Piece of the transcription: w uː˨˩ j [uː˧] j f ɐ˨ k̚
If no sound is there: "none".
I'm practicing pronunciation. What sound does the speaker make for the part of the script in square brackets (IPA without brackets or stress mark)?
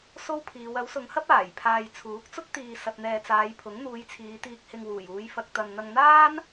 uː˨˧